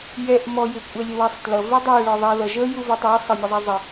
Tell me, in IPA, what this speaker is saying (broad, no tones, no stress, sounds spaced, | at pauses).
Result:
j ɛ ʔ m ɔ j ɪ kʷʼ ɛ lʲ ə w æ sˤ t l ʌ v ɛ dˤ æ ɭ ɔ ðˤ ɛ ð ʌ ʒ ə j u v ɔ tˤ æ sˤ ə mʲ ə zˤ ɛ zˤ ə